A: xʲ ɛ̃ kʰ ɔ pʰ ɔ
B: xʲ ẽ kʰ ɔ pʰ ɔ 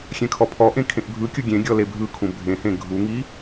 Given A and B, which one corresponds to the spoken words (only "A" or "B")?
A